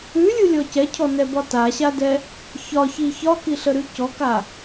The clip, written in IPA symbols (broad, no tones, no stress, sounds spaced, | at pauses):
ʉ lʲ u lʲ ɔ c ɛ cʰ ɔ n ɛ b ɒ t a ɕ a d ɛ | ç ɒ ç i ç ɒ k i ɬ ə ɾ ʉ c ɔ k a